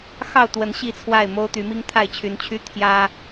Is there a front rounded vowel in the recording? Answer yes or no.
yes